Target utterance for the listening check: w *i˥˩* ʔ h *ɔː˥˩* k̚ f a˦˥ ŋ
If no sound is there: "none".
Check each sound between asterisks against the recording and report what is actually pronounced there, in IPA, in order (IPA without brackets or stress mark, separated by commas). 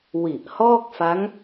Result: i˨˩, ɔː˥˩